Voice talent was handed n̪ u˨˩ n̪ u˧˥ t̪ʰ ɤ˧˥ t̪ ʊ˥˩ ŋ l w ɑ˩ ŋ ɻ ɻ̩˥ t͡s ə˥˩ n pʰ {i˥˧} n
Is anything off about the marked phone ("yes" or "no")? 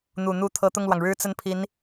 yes